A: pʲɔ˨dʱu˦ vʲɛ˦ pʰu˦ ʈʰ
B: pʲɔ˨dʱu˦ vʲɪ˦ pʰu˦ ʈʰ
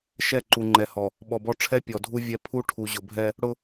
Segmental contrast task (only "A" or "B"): A